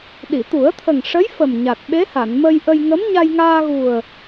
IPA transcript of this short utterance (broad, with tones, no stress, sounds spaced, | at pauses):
ɗ i˨˩˨ t̪ u˨˩˦ ə̯ t̪ʰ ə˨˩ ŋ ʂ ə˧˥ j f ə˨˩ m ɲ a˨˩ t̚ ɓ e˧˥ h a˨˩˨ n m ə˧ j ʔ ə˧ j ŋ ə˧˥ m ɲ a˧ j ŋ aː˧ ɣ u˨˩ ə̯